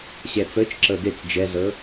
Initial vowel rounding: unrounded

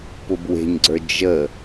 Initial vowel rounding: rounded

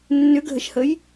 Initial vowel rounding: rounded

